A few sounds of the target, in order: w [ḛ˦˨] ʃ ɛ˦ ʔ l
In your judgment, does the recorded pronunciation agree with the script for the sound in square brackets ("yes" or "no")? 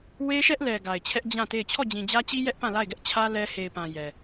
no